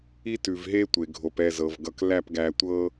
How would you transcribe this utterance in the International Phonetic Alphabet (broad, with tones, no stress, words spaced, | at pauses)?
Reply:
i˦tʉ˨vɦe˦ tʷe˨ɡʱo˨p ɛ˦˨zɤ˨v ɡʌ˨klæ˦˨pɡæ˨ tʷɤ˦